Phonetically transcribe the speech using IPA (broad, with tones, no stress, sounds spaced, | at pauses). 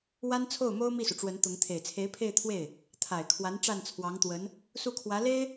w a˥ n t͡sʰ o˥˩ ʊ̯ m o˥ ʊ̯ m i˥˩ s u˩ ʈ͡ʂ w ə˧˥ n t̪ ʊ˧˥ ŋ t̪ʰ e˨˩ ɪ̯ t͡sʰ e˧˥ ɪ̯ pʰ e˥˧ ɪ̯ t̪ʰ w e˥˩ ɪ̯ | t̪ʰ a˨˩ ɪ̯ kʰ w a˧˥ n ʈ͡ʂ a˥˩ n t͡sʰ w ɑ˧˥ ŋ t̪ w ə˧˥ n | s u˥˩ kʰ w ä˧˥ l e˥ ɪ̯